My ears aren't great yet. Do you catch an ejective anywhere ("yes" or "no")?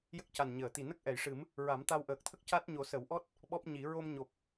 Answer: no